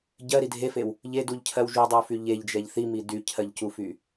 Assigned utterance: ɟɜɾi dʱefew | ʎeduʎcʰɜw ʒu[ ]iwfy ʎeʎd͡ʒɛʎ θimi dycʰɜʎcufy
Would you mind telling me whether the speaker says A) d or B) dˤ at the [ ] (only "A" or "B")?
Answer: B